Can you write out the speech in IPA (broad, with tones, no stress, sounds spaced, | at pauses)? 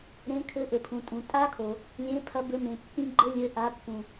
ɾ ẽ˨˦ kʰ ɘ˨˦ ʔ ɘ˩ pʰ ũ˩ tʼ ũ˩ tʼ a˦˥ kʰ o˩ | lʲ ẽ˨˦ pʰ ɐ˨˦ b ɘ˨˦ m ẽ˩ pː ĩ˦˥ ɡ͡ǃ ɘ˦˥ lʲ ɘ˨˦ ʔ a˨˦ pː ũ˩